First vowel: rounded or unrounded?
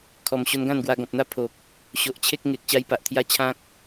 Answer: rounded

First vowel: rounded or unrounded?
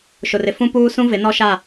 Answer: rounded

